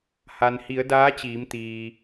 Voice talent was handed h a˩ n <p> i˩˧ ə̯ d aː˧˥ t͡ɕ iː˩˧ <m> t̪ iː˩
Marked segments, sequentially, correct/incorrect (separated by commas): incorrect, correct